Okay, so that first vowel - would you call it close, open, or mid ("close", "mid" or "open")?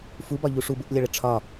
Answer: close